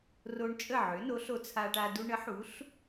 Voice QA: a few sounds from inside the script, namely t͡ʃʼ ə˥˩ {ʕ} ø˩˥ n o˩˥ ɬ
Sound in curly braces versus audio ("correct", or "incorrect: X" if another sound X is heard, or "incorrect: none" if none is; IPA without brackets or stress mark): correct